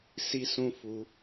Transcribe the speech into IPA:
si˦sũ˦fu˧

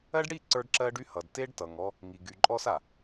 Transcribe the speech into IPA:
ɜ˦ɖɽi˦˨ ǀə˞˦ɖǁɜ˦ɖy˦hʌ˨d te˦ɖtʌ˨ŋɔ˦ | ŋi˨ɡy˨ǃʼɔ˦s a˨

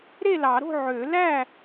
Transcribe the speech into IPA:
ɾe˥˨lɑ˨˩˦ɾo̤˥˨ ʕø˨˩˦læ˥˨

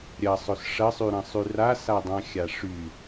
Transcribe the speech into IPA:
ɾʲɐsˤɵs ʂɐsˤyɾɐ̃sˤy rasadˤãxʲa ʂy

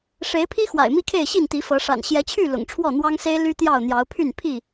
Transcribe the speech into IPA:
ʂe˨˦ɪ̯pʰi˦ xwa̰˨˩ɪ̯mi˦kʰe˥˨ɪ̯ ɕi˥˨nt̪i˨˦fɤ˨˦ʂa̰˨˩n ɕjɛ˨˦t͡ɕʰy˥˨ lʊ̰˨˩ŋʈ͡ʂʰwɔ˥˨n̪wɑ˦ŋse˦ɪ̯ ly˦t̪jɑ˥˨ʊ̯ n̪jɑ˨˦ʊ̯pʰy˥˨n pʰi˥˨

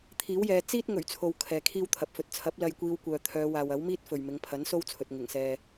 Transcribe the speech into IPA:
t̪ʰiː˨˥wjɛː˨˧ t͡siː˥t̚ ŋɵ˨˩ɥt͡sʰo˨w kʰɛː˨kʰiː˥wt̪ʰɐ˨p̚ fɵ˨t̚t͡sʰɐ˨˥p̚ lɐ˧j kʷiː˧wkʷœː˨t̪ʰœː˨˧ waː˨wɐ˨˥w miː˥t̚fɵ˨ɥmɪ˨˧ŋ pʰɐ˨˥nso˥wt͡sʰɵ˨t̚ ŋɪ˨˩ŋsɛː˨

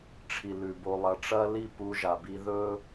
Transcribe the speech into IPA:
ʈ͡ʂʰi˨lʉ˨ bo˧lˠɐ˧ ʈ͡ʂɐ˦li˦ pu˧ʒa˨bi˧ ðɵ˦

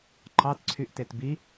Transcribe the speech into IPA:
ǃɑtǀʰyʔtet bi

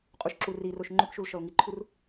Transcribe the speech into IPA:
qʼuʃǁuriroʃ ŋ͡ǃʏkʃul ʃɔlŋiǃʰur

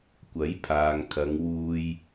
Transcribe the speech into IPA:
kʷɐ˨˥jpʰaː˨ŋ kʰɐ˨˧ŋwuː˧j

